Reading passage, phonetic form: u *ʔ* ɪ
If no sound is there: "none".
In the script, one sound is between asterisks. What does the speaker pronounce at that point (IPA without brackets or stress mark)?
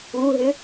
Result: ɦ